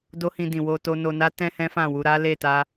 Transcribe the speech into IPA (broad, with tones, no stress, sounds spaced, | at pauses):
d o˦ h ĩ˧ d ĩ˨ w o˧ t o˧ n o˧ n a˦ t ɛ̃˦ h ɛ̃˦ f ã˦˨ w u˧ ɾ a˦ l e˦˨ t a˧